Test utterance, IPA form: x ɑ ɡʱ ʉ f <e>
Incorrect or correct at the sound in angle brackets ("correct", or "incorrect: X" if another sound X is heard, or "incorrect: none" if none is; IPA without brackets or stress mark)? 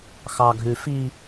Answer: incorrect: i